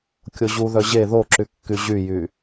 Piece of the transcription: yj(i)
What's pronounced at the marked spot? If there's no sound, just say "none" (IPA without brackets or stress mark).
y